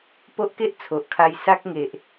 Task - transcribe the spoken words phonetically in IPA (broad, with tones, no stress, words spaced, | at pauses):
po˦ʔke˦ʔ t͡sʰo˨ʔkʰa˧jsa˦k̚ ŋe˨ʔ